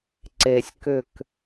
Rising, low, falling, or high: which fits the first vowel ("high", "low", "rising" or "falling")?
low